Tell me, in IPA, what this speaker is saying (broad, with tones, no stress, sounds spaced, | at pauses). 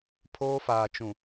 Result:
pʰ oː˦ f aː˨ t͡ʃ ũ˨